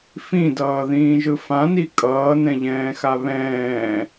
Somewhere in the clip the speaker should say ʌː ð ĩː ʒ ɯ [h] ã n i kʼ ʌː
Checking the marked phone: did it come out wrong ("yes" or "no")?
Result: yes